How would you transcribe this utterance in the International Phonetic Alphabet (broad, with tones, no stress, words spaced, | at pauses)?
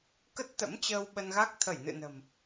kə˦˥t̚t̪ə̰˧˥mt͡ɕəː˧w ɓə˧nɣa˦˥k̚ t̪ʰə˧˩jnɨ̰˧˨nə̤˨˩m